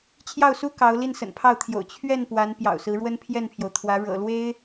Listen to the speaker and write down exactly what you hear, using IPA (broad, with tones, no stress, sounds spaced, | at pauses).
t͡ɕʰ j ɑ˥˩ ʊ̯ s u˥ k ɑ˧˥ ʊ̯ l i˥˩ n s ə̰˨˩ n pʰ ɑ˥˩ ʊ̯ t̪ʰ j o̰˨˩ ʊ̯ t͡ɕʰ ɥ ɛ˥˩ n p w a˧˥ n p j ɑ̰˨˩ ʊ̯ s ɹ̩˧˥ ɻ w ə˥ n pʰ j ɛ˥˩ n pʰ j o˩ ʊ̯ t̪ʰ w ä˧˥ ɻ ɤ̰˨˩ l w e˥ ɪ̯